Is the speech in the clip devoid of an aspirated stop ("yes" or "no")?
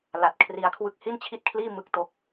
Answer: no